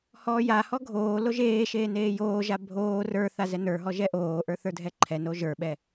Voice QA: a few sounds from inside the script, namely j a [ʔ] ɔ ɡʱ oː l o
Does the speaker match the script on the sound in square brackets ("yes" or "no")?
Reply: no